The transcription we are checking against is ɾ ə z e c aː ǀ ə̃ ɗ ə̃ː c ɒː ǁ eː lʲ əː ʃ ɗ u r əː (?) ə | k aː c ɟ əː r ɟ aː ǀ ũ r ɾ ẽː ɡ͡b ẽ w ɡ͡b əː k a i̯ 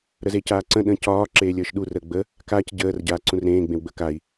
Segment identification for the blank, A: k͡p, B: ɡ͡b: B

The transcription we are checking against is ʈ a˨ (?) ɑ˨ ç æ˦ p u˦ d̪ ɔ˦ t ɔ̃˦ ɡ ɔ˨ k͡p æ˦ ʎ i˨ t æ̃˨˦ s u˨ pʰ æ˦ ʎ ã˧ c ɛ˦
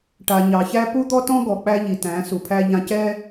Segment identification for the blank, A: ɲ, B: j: A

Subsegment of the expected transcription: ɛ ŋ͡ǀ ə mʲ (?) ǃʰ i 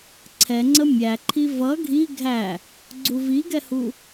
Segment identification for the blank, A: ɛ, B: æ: B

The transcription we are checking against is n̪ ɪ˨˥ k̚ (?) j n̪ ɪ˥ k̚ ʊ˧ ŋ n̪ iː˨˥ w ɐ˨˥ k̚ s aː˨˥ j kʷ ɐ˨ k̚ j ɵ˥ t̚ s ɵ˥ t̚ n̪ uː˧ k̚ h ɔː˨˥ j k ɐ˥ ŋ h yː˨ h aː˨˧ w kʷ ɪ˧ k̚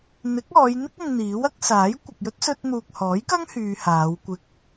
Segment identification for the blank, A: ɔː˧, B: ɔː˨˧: B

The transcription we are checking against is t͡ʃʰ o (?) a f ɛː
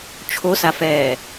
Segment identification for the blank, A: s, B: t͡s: A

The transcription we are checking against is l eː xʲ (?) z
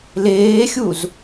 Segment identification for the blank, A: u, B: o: A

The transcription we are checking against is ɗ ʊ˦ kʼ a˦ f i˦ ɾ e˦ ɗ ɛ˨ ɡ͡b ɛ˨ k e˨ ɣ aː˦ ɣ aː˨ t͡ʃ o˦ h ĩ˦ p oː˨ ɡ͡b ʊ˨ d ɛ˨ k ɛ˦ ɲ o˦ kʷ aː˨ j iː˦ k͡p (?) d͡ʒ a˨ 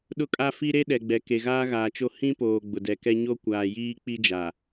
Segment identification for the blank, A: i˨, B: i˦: B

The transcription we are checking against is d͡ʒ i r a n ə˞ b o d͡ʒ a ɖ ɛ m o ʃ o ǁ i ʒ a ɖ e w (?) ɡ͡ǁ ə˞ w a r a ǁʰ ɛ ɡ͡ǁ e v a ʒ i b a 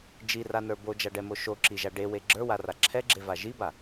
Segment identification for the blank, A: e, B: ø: A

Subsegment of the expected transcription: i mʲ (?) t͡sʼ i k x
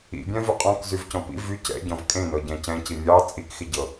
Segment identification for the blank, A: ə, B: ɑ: B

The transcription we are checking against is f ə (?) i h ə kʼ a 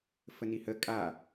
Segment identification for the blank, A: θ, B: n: B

